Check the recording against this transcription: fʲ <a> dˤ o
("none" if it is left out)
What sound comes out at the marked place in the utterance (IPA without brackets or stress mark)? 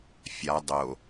a